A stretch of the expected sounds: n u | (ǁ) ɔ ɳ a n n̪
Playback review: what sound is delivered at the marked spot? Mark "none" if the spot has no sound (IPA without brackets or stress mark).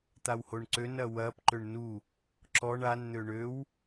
ǁ